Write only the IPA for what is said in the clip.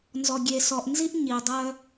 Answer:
nzɔ˨ɡʲe˨sɔ˨ʔnzi˦ʔ ɲi˨dˤœ˦

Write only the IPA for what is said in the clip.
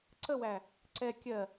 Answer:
ǀəwæ | ǀɛ kʲɜ

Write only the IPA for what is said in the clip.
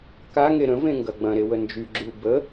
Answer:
kaŋe ɾə̃ vẽŋɡɐɡ͡bɐ̃ɾe wənd͡ʒyɡ͡ǁyu̯ bə

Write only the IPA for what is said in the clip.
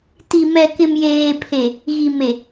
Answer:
ti˨mɛ˨ kɪ˨mjeː˨pʰe˨ | ɣi˨me˨

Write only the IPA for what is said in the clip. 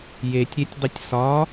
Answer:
jetʲ ɾʲetʲdˤitʲ sɒ

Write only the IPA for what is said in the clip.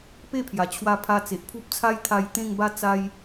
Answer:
pe˥˧pʰja˨˩t͡ɕʰwa˧pʰa˧ t͡se˨ʔpʰu˦p̚t͡sʰa˦jt̪ʰa˧j t̪ẽ˥˧ŋba˥˧ t͡sa˦j

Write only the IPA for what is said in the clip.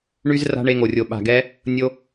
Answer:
ɳy˦z ra̤˦ɳe˧ŋo˨rʲo˨ ɓa̤˨ɡɛ˧ | nʲo˦

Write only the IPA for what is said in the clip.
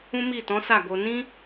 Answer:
ũ˦mi˦˨tɔ̃˨˦ sa˦˨ɡo˧ nĩ˦

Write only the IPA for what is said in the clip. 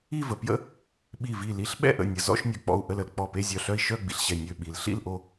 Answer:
i˥˧və˩ pjə̰˥˧ | ɓi˧˩vi˧˩li˧˩ɬ ɓɛ̰˥˧ʔə̰˧˩nʲə˩ zɔ̰˥˧ʃnʲœ˩k͡pɔ̰˧˩u̯ ʔə˧˩lə˩l k͡pɔ˧˩pe˥˧zʲœ˧˩ɬœ˥˧i̯ ʃœ˥˧ ɡ͡bḭ˩ɬɕɛ˧˩ nʲø˧˩ ɓi˩lɬḭ˥˧l ʔo˥˧

